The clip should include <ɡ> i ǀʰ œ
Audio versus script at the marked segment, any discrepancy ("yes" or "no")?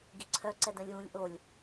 no